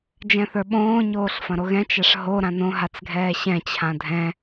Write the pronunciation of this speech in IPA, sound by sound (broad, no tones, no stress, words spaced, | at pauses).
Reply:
d͡ʒɛ̃θə˞ɓõː ɲoːɬfɐ̃ɾoɣɛ̃ t͡ʃaʂɦo ɾãnõ ɦat͡sɡʱɛːɕɛ̃ t͡ɕʰãdʱɛ̃